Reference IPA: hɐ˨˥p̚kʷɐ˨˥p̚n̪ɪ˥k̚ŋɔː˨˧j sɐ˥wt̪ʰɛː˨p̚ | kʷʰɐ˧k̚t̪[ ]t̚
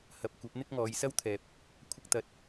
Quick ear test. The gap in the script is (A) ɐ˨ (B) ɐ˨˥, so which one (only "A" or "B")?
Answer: A